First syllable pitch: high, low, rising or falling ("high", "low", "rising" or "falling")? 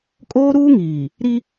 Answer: high